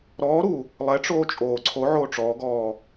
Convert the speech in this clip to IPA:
ɾ ɔː ɾ u | lˠ ɛ ʈ͡ʂ oː t͡ʃʼ oː ǀʰ o ʕ oː ʈ͡ʂ ɔː ɡ ɔː

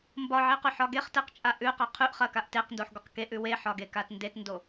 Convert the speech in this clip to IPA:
m b ɒ ʕ e q ʉ ħ ɒ ɡ e χ t e q t͡ʃʼ a ʔ ʉ q a qʰ ʉ ʔ χ ɐ k a ʔ t e q n d o ħ ɡʷ ɐ q k e ʔ ʉ w e ħ ɒ ɡ e k a t n d e t n d o

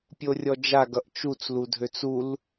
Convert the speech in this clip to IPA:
pʲ o rʲ ɔ d͡ʒ a ɡ ʌ ʔ t͡ʃ u t͡s l u dʱ ø t͡s u l

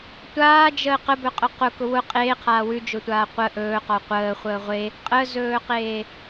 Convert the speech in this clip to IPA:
tʷ aː d͡ʒ əː q ə b ɵ qʼ ʊ q ʊ k ʊ w ʊ qʼ eː qʰ aː w ʉ d͡ʒ ʊ tʷ aː qʷ ə ʔ ɵː q ɔ qʷ əː χʷ əː ʁʷ e | qʼ ə z ɵː q eː

